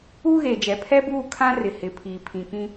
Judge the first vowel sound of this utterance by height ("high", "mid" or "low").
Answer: high